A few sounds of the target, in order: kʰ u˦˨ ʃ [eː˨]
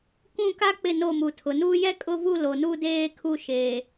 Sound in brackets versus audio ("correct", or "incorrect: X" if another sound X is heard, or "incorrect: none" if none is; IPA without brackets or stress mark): correct